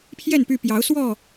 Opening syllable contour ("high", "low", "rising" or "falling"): falling